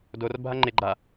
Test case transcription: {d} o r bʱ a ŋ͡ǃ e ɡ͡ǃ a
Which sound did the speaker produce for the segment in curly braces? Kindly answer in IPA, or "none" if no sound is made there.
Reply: d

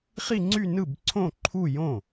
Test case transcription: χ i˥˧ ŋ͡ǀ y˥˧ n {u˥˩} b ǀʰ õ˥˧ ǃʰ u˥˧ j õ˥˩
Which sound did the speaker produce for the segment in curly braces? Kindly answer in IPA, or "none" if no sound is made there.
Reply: ɯ˥˩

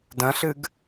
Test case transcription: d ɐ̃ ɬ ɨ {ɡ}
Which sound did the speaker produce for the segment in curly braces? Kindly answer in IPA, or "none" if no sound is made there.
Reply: ɡ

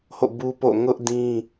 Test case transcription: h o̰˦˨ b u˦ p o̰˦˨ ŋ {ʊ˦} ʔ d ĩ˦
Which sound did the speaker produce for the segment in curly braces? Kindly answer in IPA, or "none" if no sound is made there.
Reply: ʊ˦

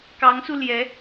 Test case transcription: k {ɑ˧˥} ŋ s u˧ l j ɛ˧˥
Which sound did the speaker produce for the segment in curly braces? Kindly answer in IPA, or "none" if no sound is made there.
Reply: ɑ˧˥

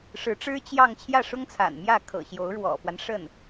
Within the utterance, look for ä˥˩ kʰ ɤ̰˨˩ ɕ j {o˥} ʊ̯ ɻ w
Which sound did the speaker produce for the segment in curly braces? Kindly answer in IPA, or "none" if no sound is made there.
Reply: o˧˥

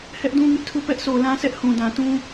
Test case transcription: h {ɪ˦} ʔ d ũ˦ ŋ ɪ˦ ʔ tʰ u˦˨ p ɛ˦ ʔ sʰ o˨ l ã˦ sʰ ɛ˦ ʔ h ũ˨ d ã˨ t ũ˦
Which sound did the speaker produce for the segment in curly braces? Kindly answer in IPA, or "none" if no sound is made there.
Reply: ɛ˦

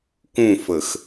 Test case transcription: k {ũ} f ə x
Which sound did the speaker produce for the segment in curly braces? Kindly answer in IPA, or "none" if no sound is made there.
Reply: ũ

